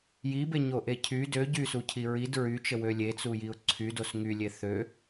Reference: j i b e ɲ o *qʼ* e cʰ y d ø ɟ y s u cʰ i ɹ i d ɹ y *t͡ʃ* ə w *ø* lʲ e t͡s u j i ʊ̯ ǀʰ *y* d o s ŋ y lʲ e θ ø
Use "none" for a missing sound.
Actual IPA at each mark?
ʔ, t͡ʃ, ø, y

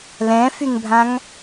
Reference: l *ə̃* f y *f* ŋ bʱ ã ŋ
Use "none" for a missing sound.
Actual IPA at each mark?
ɛ̃, none

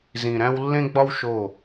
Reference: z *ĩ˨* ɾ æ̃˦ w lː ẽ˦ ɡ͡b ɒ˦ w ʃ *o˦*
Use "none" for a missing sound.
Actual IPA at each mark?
ĩ˨, o˦˨

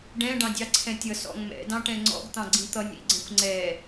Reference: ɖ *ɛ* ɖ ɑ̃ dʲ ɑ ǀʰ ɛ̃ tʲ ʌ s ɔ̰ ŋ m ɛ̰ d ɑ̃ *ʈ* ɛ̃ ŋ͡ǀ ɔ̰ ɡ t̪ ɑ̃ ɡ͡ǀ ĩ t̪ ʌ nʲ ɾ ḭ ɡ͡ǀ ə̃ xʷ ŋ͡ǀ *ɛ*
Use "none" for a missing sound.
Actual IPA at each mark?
ɛ̃, ʈ, ɛ

